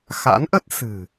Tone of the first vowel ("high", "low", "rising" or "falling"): rising